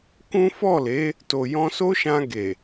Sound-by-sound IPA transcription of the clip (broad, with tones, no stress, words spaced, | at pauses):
kũ˦ fɔ˦˨le˨˦ | to˨jɔ̃˧so˦ʃã˧ ɡe˨